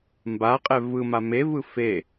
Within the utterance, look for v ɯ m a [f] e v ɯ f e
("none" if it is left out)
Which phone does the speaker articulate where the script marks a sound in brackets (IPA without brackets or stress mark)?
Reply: m